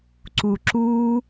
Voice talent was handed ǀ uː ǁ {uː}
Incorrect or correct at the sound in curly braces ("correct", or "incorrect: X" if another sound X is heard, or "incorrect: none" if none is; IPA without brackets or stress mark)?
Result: correct